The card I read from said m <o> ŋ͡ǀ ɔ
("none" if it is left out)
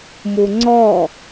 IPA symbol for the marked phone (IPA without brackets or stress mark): u